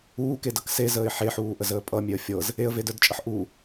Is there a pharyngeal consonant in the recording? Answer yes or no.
yes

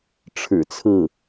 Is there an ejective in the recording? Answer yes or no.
no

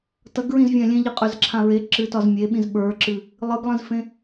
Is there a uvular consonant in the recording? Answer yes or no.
yes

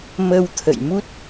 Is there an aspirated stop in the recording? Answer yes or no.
yes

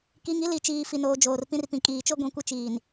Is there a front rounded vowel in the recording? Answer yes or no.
no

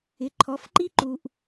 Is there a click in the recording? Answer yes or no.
yes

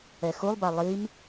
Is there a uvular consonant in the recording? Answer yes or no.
no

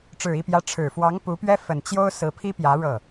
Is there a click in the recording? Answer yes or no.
no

